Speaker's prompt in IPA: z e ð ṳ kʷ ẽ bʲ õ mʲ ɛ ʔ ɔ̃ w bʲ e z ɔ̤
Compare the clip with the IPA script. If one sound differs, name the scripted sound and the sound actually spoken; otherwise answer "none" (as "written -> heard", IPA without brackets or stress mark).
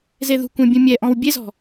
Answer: õ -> ũ